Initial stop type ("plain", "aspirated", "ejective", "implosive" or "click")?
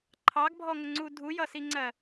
click